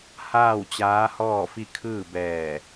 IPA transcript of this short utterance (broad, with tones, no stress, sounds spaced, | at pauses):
h aː˥˨ w t͡ɕ aː˧˥ h ɔː˥˨ f i˥˨ kʰ ɯː˥˨ b ɛː˧˩